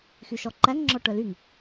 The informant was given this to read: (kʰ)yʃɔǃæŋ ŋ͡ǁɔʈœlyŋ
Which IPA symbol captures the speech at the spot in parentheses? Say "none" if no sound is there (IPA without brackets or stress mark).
x